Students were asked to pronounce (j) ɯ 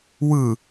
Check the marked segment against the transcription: incorrect: w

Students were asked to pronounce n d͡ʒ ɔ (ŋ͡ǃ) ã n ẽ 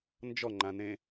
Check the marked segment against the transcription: correct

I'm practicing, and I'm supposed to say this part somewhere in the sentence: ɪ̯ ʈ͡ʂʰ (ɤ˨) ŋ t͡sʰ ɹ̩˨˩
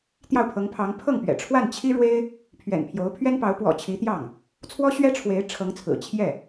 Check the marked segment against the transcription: incorrect: ɤ˧˥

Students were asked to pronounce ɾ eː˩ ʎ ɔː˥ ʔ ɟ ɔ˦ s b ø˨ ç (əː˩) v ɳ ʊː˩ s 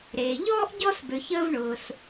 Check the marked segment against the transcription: incorrect: əː˦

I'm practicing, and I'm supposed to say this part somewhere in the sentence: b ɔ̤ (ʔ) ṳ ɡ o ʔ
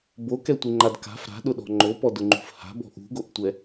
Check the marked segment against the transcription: correct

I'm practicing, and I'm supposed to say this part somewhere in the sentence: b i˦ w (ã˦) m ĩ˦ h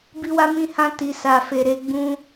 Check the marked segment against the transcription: incorrect: a˦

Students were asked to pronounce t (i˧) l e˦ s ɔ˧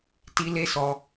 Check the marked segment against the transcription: correct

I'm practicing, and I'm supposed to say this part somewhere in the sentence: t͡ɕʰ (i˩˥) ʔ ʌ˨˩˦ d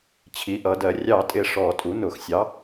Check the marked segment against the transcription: correct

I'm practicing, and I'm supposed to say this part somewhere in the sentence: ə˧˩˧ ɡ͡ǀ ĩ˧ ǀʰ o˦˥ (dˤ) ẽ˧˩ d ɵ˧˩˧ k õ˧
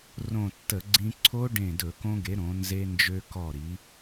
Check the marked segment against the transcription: incorrect: ɖ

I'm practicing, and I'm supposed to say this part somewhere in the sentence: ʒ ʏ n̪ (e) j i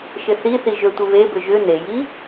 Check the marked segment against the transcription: correct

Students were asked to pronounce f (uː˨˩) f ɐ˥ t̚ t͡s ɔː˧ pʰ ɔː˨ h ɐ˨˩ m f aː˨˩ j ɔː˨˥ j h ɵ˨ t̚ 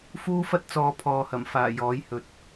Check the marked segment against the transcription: incorrect: uː˥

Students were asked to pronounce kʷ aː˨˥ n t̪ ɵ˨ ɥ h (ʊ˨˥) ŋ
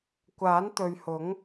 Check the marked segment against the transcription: correct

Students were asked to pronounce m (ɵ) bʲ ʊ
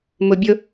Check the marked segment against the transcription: incorrect: ʊ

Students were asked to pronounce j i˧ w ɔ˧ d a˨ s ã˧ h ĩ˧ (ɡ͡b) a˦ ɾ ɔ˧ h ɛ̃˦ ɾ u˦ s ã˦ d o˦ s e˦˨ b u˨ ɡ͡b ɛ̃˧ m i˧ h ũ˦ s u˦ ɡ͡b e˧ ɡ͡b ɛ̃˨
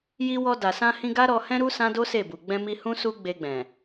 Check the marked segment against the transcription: incorrect: ɡ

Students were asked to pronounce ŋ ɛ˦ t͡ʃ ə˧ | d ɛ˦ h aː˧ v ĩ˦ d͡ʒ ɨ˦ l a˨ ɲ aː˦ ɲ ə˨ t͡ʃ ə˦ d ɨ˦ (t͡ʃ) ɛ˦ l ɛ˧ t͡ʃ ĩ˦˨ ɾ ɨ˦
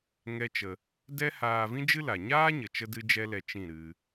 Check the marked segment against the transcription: incorrect: d͡ʒ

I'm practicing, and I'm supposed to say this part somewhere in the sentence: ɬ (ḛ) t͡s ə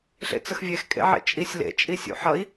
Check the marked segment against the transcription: correct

